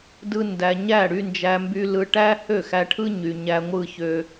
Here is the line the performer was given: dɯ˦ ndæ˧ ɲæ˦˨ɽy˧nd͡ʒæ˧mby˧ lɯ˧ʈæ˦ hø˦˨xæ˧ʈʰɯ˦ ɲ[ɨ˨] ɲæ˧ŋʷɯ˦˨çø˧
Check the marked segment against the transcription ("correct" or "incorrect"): incorrect